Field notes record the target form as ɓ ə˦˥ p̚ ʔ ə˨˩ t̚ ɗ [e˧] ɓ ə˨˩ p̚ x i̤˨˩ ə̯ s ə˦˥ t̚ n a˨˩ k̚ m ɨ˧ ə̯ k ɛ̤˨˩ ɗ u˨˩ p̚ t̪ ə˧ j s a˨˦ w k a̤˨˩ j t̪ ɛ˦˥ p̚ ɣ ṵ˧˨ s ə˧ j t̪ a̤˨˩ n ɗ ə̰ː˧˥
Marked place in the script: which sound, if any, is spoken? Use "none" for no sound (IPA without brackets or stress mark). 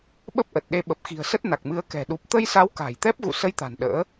e˧